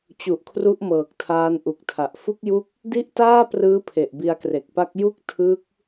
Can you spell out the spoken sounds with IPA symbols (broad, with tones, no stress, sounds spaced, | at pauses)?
t͡ɕ u˨˩ ʔ kʰ r u˦˥ ʔ m ɤː˨˩ k̚ tʰ aː˧ n ʔ u˨˩ k̚ tʰ a˨˩ ʔ f u˦˥ k̚ j u˦˥ k̚ | d i˥˩ ʔ t aː˥˩ p r ɯː˦˥ pʰ e˨˩ ʔ b i˧ a̯ k r e˨˩ k̚ p a˦˥ k̚ j u˥˩ k̚ tʰ ɯ˦˥ k̚